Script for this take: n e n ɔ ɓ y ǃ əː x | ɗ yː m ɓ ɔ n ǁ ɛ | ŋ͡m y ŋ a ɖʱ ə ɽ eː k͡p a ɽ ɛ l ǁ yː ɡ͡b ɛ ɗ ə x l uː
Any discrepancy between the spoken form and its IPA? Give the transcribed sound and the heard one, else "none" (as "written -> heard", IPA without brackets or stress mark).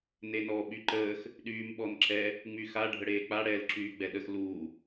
ŋ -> x